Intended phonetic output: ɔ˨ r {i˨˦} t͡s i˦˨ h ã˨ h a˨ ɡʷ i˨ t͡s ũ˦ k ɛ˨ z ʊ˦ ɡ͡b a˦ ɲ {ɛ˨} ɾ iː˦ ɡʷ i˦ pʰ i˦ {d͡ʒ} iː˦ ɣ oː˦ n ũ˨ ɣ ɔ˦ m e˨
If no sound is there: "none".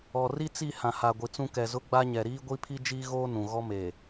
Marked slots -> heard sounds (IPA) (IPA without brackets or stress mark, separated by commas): i˦, ɛ˨, d͡ʒ